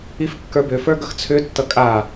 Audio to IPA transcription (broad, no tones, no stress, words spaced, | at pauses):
ifkːə˞bʏfə˞ ɡʌxt͡sʰʏtːʌ kʼa